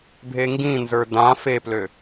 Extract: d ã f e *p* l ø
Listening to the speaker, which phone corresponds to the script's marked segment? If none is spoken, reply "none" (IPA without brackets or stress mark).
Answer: p